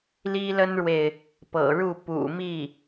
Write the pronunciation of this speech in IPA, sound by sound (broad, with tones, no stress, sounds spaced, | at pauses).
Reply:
l i˥ l ə˥ n ɻ w e˨ ɪ̯ | p ɤ̰˨˩ ɻ u˥˩ p ṵ˨˩ m i˥˩